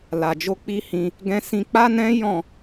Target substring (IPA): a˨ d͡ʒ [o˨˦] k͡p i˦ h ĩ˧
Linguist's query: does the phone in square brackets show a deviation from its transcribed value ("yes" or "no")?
yes